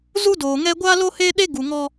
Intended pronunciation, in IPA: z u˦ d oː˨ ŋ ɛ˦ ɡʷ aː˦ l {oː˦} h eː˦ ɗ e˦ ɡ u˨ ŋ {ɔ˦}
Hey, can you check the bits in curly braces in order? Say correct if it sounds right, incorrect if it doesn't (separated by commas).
incorrect, correct